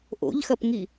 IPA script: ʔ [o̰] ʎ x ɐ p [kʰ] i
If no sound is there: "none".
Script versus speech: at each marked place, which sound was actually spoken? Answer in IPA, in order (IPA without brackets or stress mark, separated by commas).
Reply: o̰, ŋ